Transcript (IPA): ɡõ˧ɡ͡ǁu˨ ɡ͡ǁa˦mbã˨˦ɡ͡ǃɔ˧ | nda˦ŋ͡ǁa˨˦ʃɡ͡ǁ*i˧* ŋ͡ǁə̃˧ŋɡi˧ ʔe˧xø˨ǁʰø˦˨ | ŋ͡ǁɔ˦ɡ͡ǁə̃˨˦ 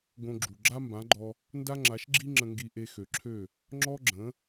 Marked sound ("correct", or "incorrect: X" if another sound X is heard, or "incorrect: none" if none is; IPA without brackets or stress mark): incorrect: i˦